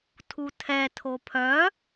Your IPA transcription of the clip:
tʰutʰɛ tʰopʰœ

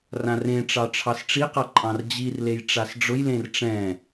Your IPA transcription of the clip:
rãrẽʈ͡ʂɑ ʈ͡ʂʰɑsʈ͡ʂiqa ǃʼɑ̃rd͡ʑirlej ʈ͡ʂasɖ͡ʐʊjlẽr ʈ͡ʂɛ̃

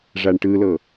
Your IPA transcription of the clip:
ʐaɳʈɯlɤ

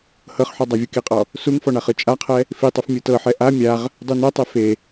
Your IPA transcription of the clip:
hɤχħɔ dˤavʲukiqʼɔ | suŋfɔ ɳaχɯt͡ʃʼaqʰɛ | fitˤuf mʲɯtɤħɛ ʔa mʲaʁ | dˤunɛtˤe fe

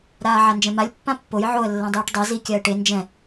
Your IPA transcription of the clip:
ɾaːʕand͡ʒɛ̃malʲ pːãpːoj ʕoə̯ lːãdˤiːʈdˤa zi kʲaə̯ʈe nd͡ʒɛ̃

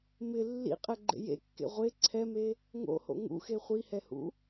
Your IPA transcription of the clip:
mɪ lːḭqʼɛɡ͡ǃḛ jḛkːḛ ʁʷe ǀʰɛme | ŋo̰ho̰ ŋṵxe χʷihɛhṵ

